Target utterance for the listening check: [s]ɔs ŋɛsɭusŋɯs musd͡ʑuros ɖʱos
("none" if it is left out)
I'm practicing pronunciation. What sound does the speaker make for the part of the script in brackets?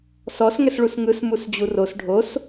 s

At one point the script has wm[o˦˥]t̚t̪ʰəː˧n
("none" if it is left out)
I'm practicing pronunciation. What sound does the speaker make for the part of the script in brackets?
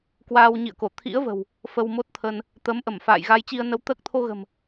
o˦˥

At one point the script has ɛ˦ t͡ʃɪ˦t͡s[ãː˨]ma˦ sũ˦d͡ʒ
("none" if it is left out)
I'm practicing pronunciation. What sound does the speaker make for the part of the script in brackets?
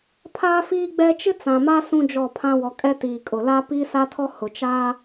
ã˨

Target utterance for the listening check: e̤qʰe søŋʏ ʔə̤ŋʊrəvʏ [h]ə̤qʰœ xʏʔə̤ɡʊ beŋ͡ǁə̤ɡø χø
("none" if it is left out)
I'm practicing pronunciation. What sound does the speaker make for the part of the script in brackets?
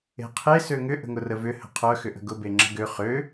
h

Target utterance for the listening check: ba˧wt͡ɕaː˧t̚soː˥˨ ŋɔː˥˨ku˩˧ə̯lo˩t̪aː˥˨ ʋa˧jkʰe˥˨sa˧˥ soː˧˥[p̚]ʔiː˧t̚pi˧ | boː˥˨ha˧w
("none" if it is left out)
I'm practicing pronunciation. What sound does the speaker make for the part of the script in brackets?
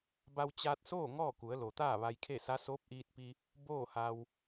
p̚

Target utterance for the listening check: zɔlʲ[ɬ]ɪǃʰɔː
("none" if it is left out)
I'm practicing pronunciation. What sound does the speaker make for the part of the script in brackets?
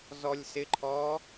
s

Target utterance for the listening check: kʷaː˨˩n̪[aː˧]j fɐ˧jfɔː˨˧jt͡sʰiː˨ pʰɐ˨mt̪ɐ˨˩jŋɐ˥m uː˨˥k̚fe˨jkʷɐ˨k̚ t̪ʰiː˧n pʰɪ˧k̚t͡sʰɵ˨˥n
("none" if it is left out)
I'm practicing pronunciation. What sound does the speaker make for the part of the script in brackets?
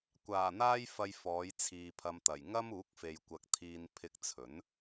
aː˧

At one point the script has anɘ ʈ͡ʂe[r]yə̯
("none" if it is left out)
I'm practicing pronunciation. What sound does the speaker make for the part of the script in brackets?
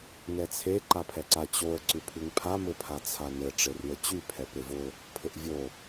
r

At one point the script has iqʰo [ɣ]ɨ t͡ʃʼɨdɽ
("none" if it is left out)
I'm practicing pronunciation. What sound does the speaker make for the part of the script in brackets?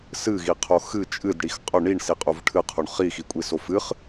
x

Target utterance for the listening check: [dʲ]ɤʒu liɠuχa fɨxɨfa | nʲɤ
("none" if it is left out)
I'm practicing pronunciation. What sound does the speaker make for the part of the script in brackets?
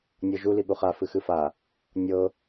nʲ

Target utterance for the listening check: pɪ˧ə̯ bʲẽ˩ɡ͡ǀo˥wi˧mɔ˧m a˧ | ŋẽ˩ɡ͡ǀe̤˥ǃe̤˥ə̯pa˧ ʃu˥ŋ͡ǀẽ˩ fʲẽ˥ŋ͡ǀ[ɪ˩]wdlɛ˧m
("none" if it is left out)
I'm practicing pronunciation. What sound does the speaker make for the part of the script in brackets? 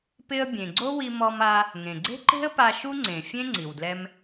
i˩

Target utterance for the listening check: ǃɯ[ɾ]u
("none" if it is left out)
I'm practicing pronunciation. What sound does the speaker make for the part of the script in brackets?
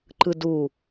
d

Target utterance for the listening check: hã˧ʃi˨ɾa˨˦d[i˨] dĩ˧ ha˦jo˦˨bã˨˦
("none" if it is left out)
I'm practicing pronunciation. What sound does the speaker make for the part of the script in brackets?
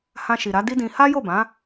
i˦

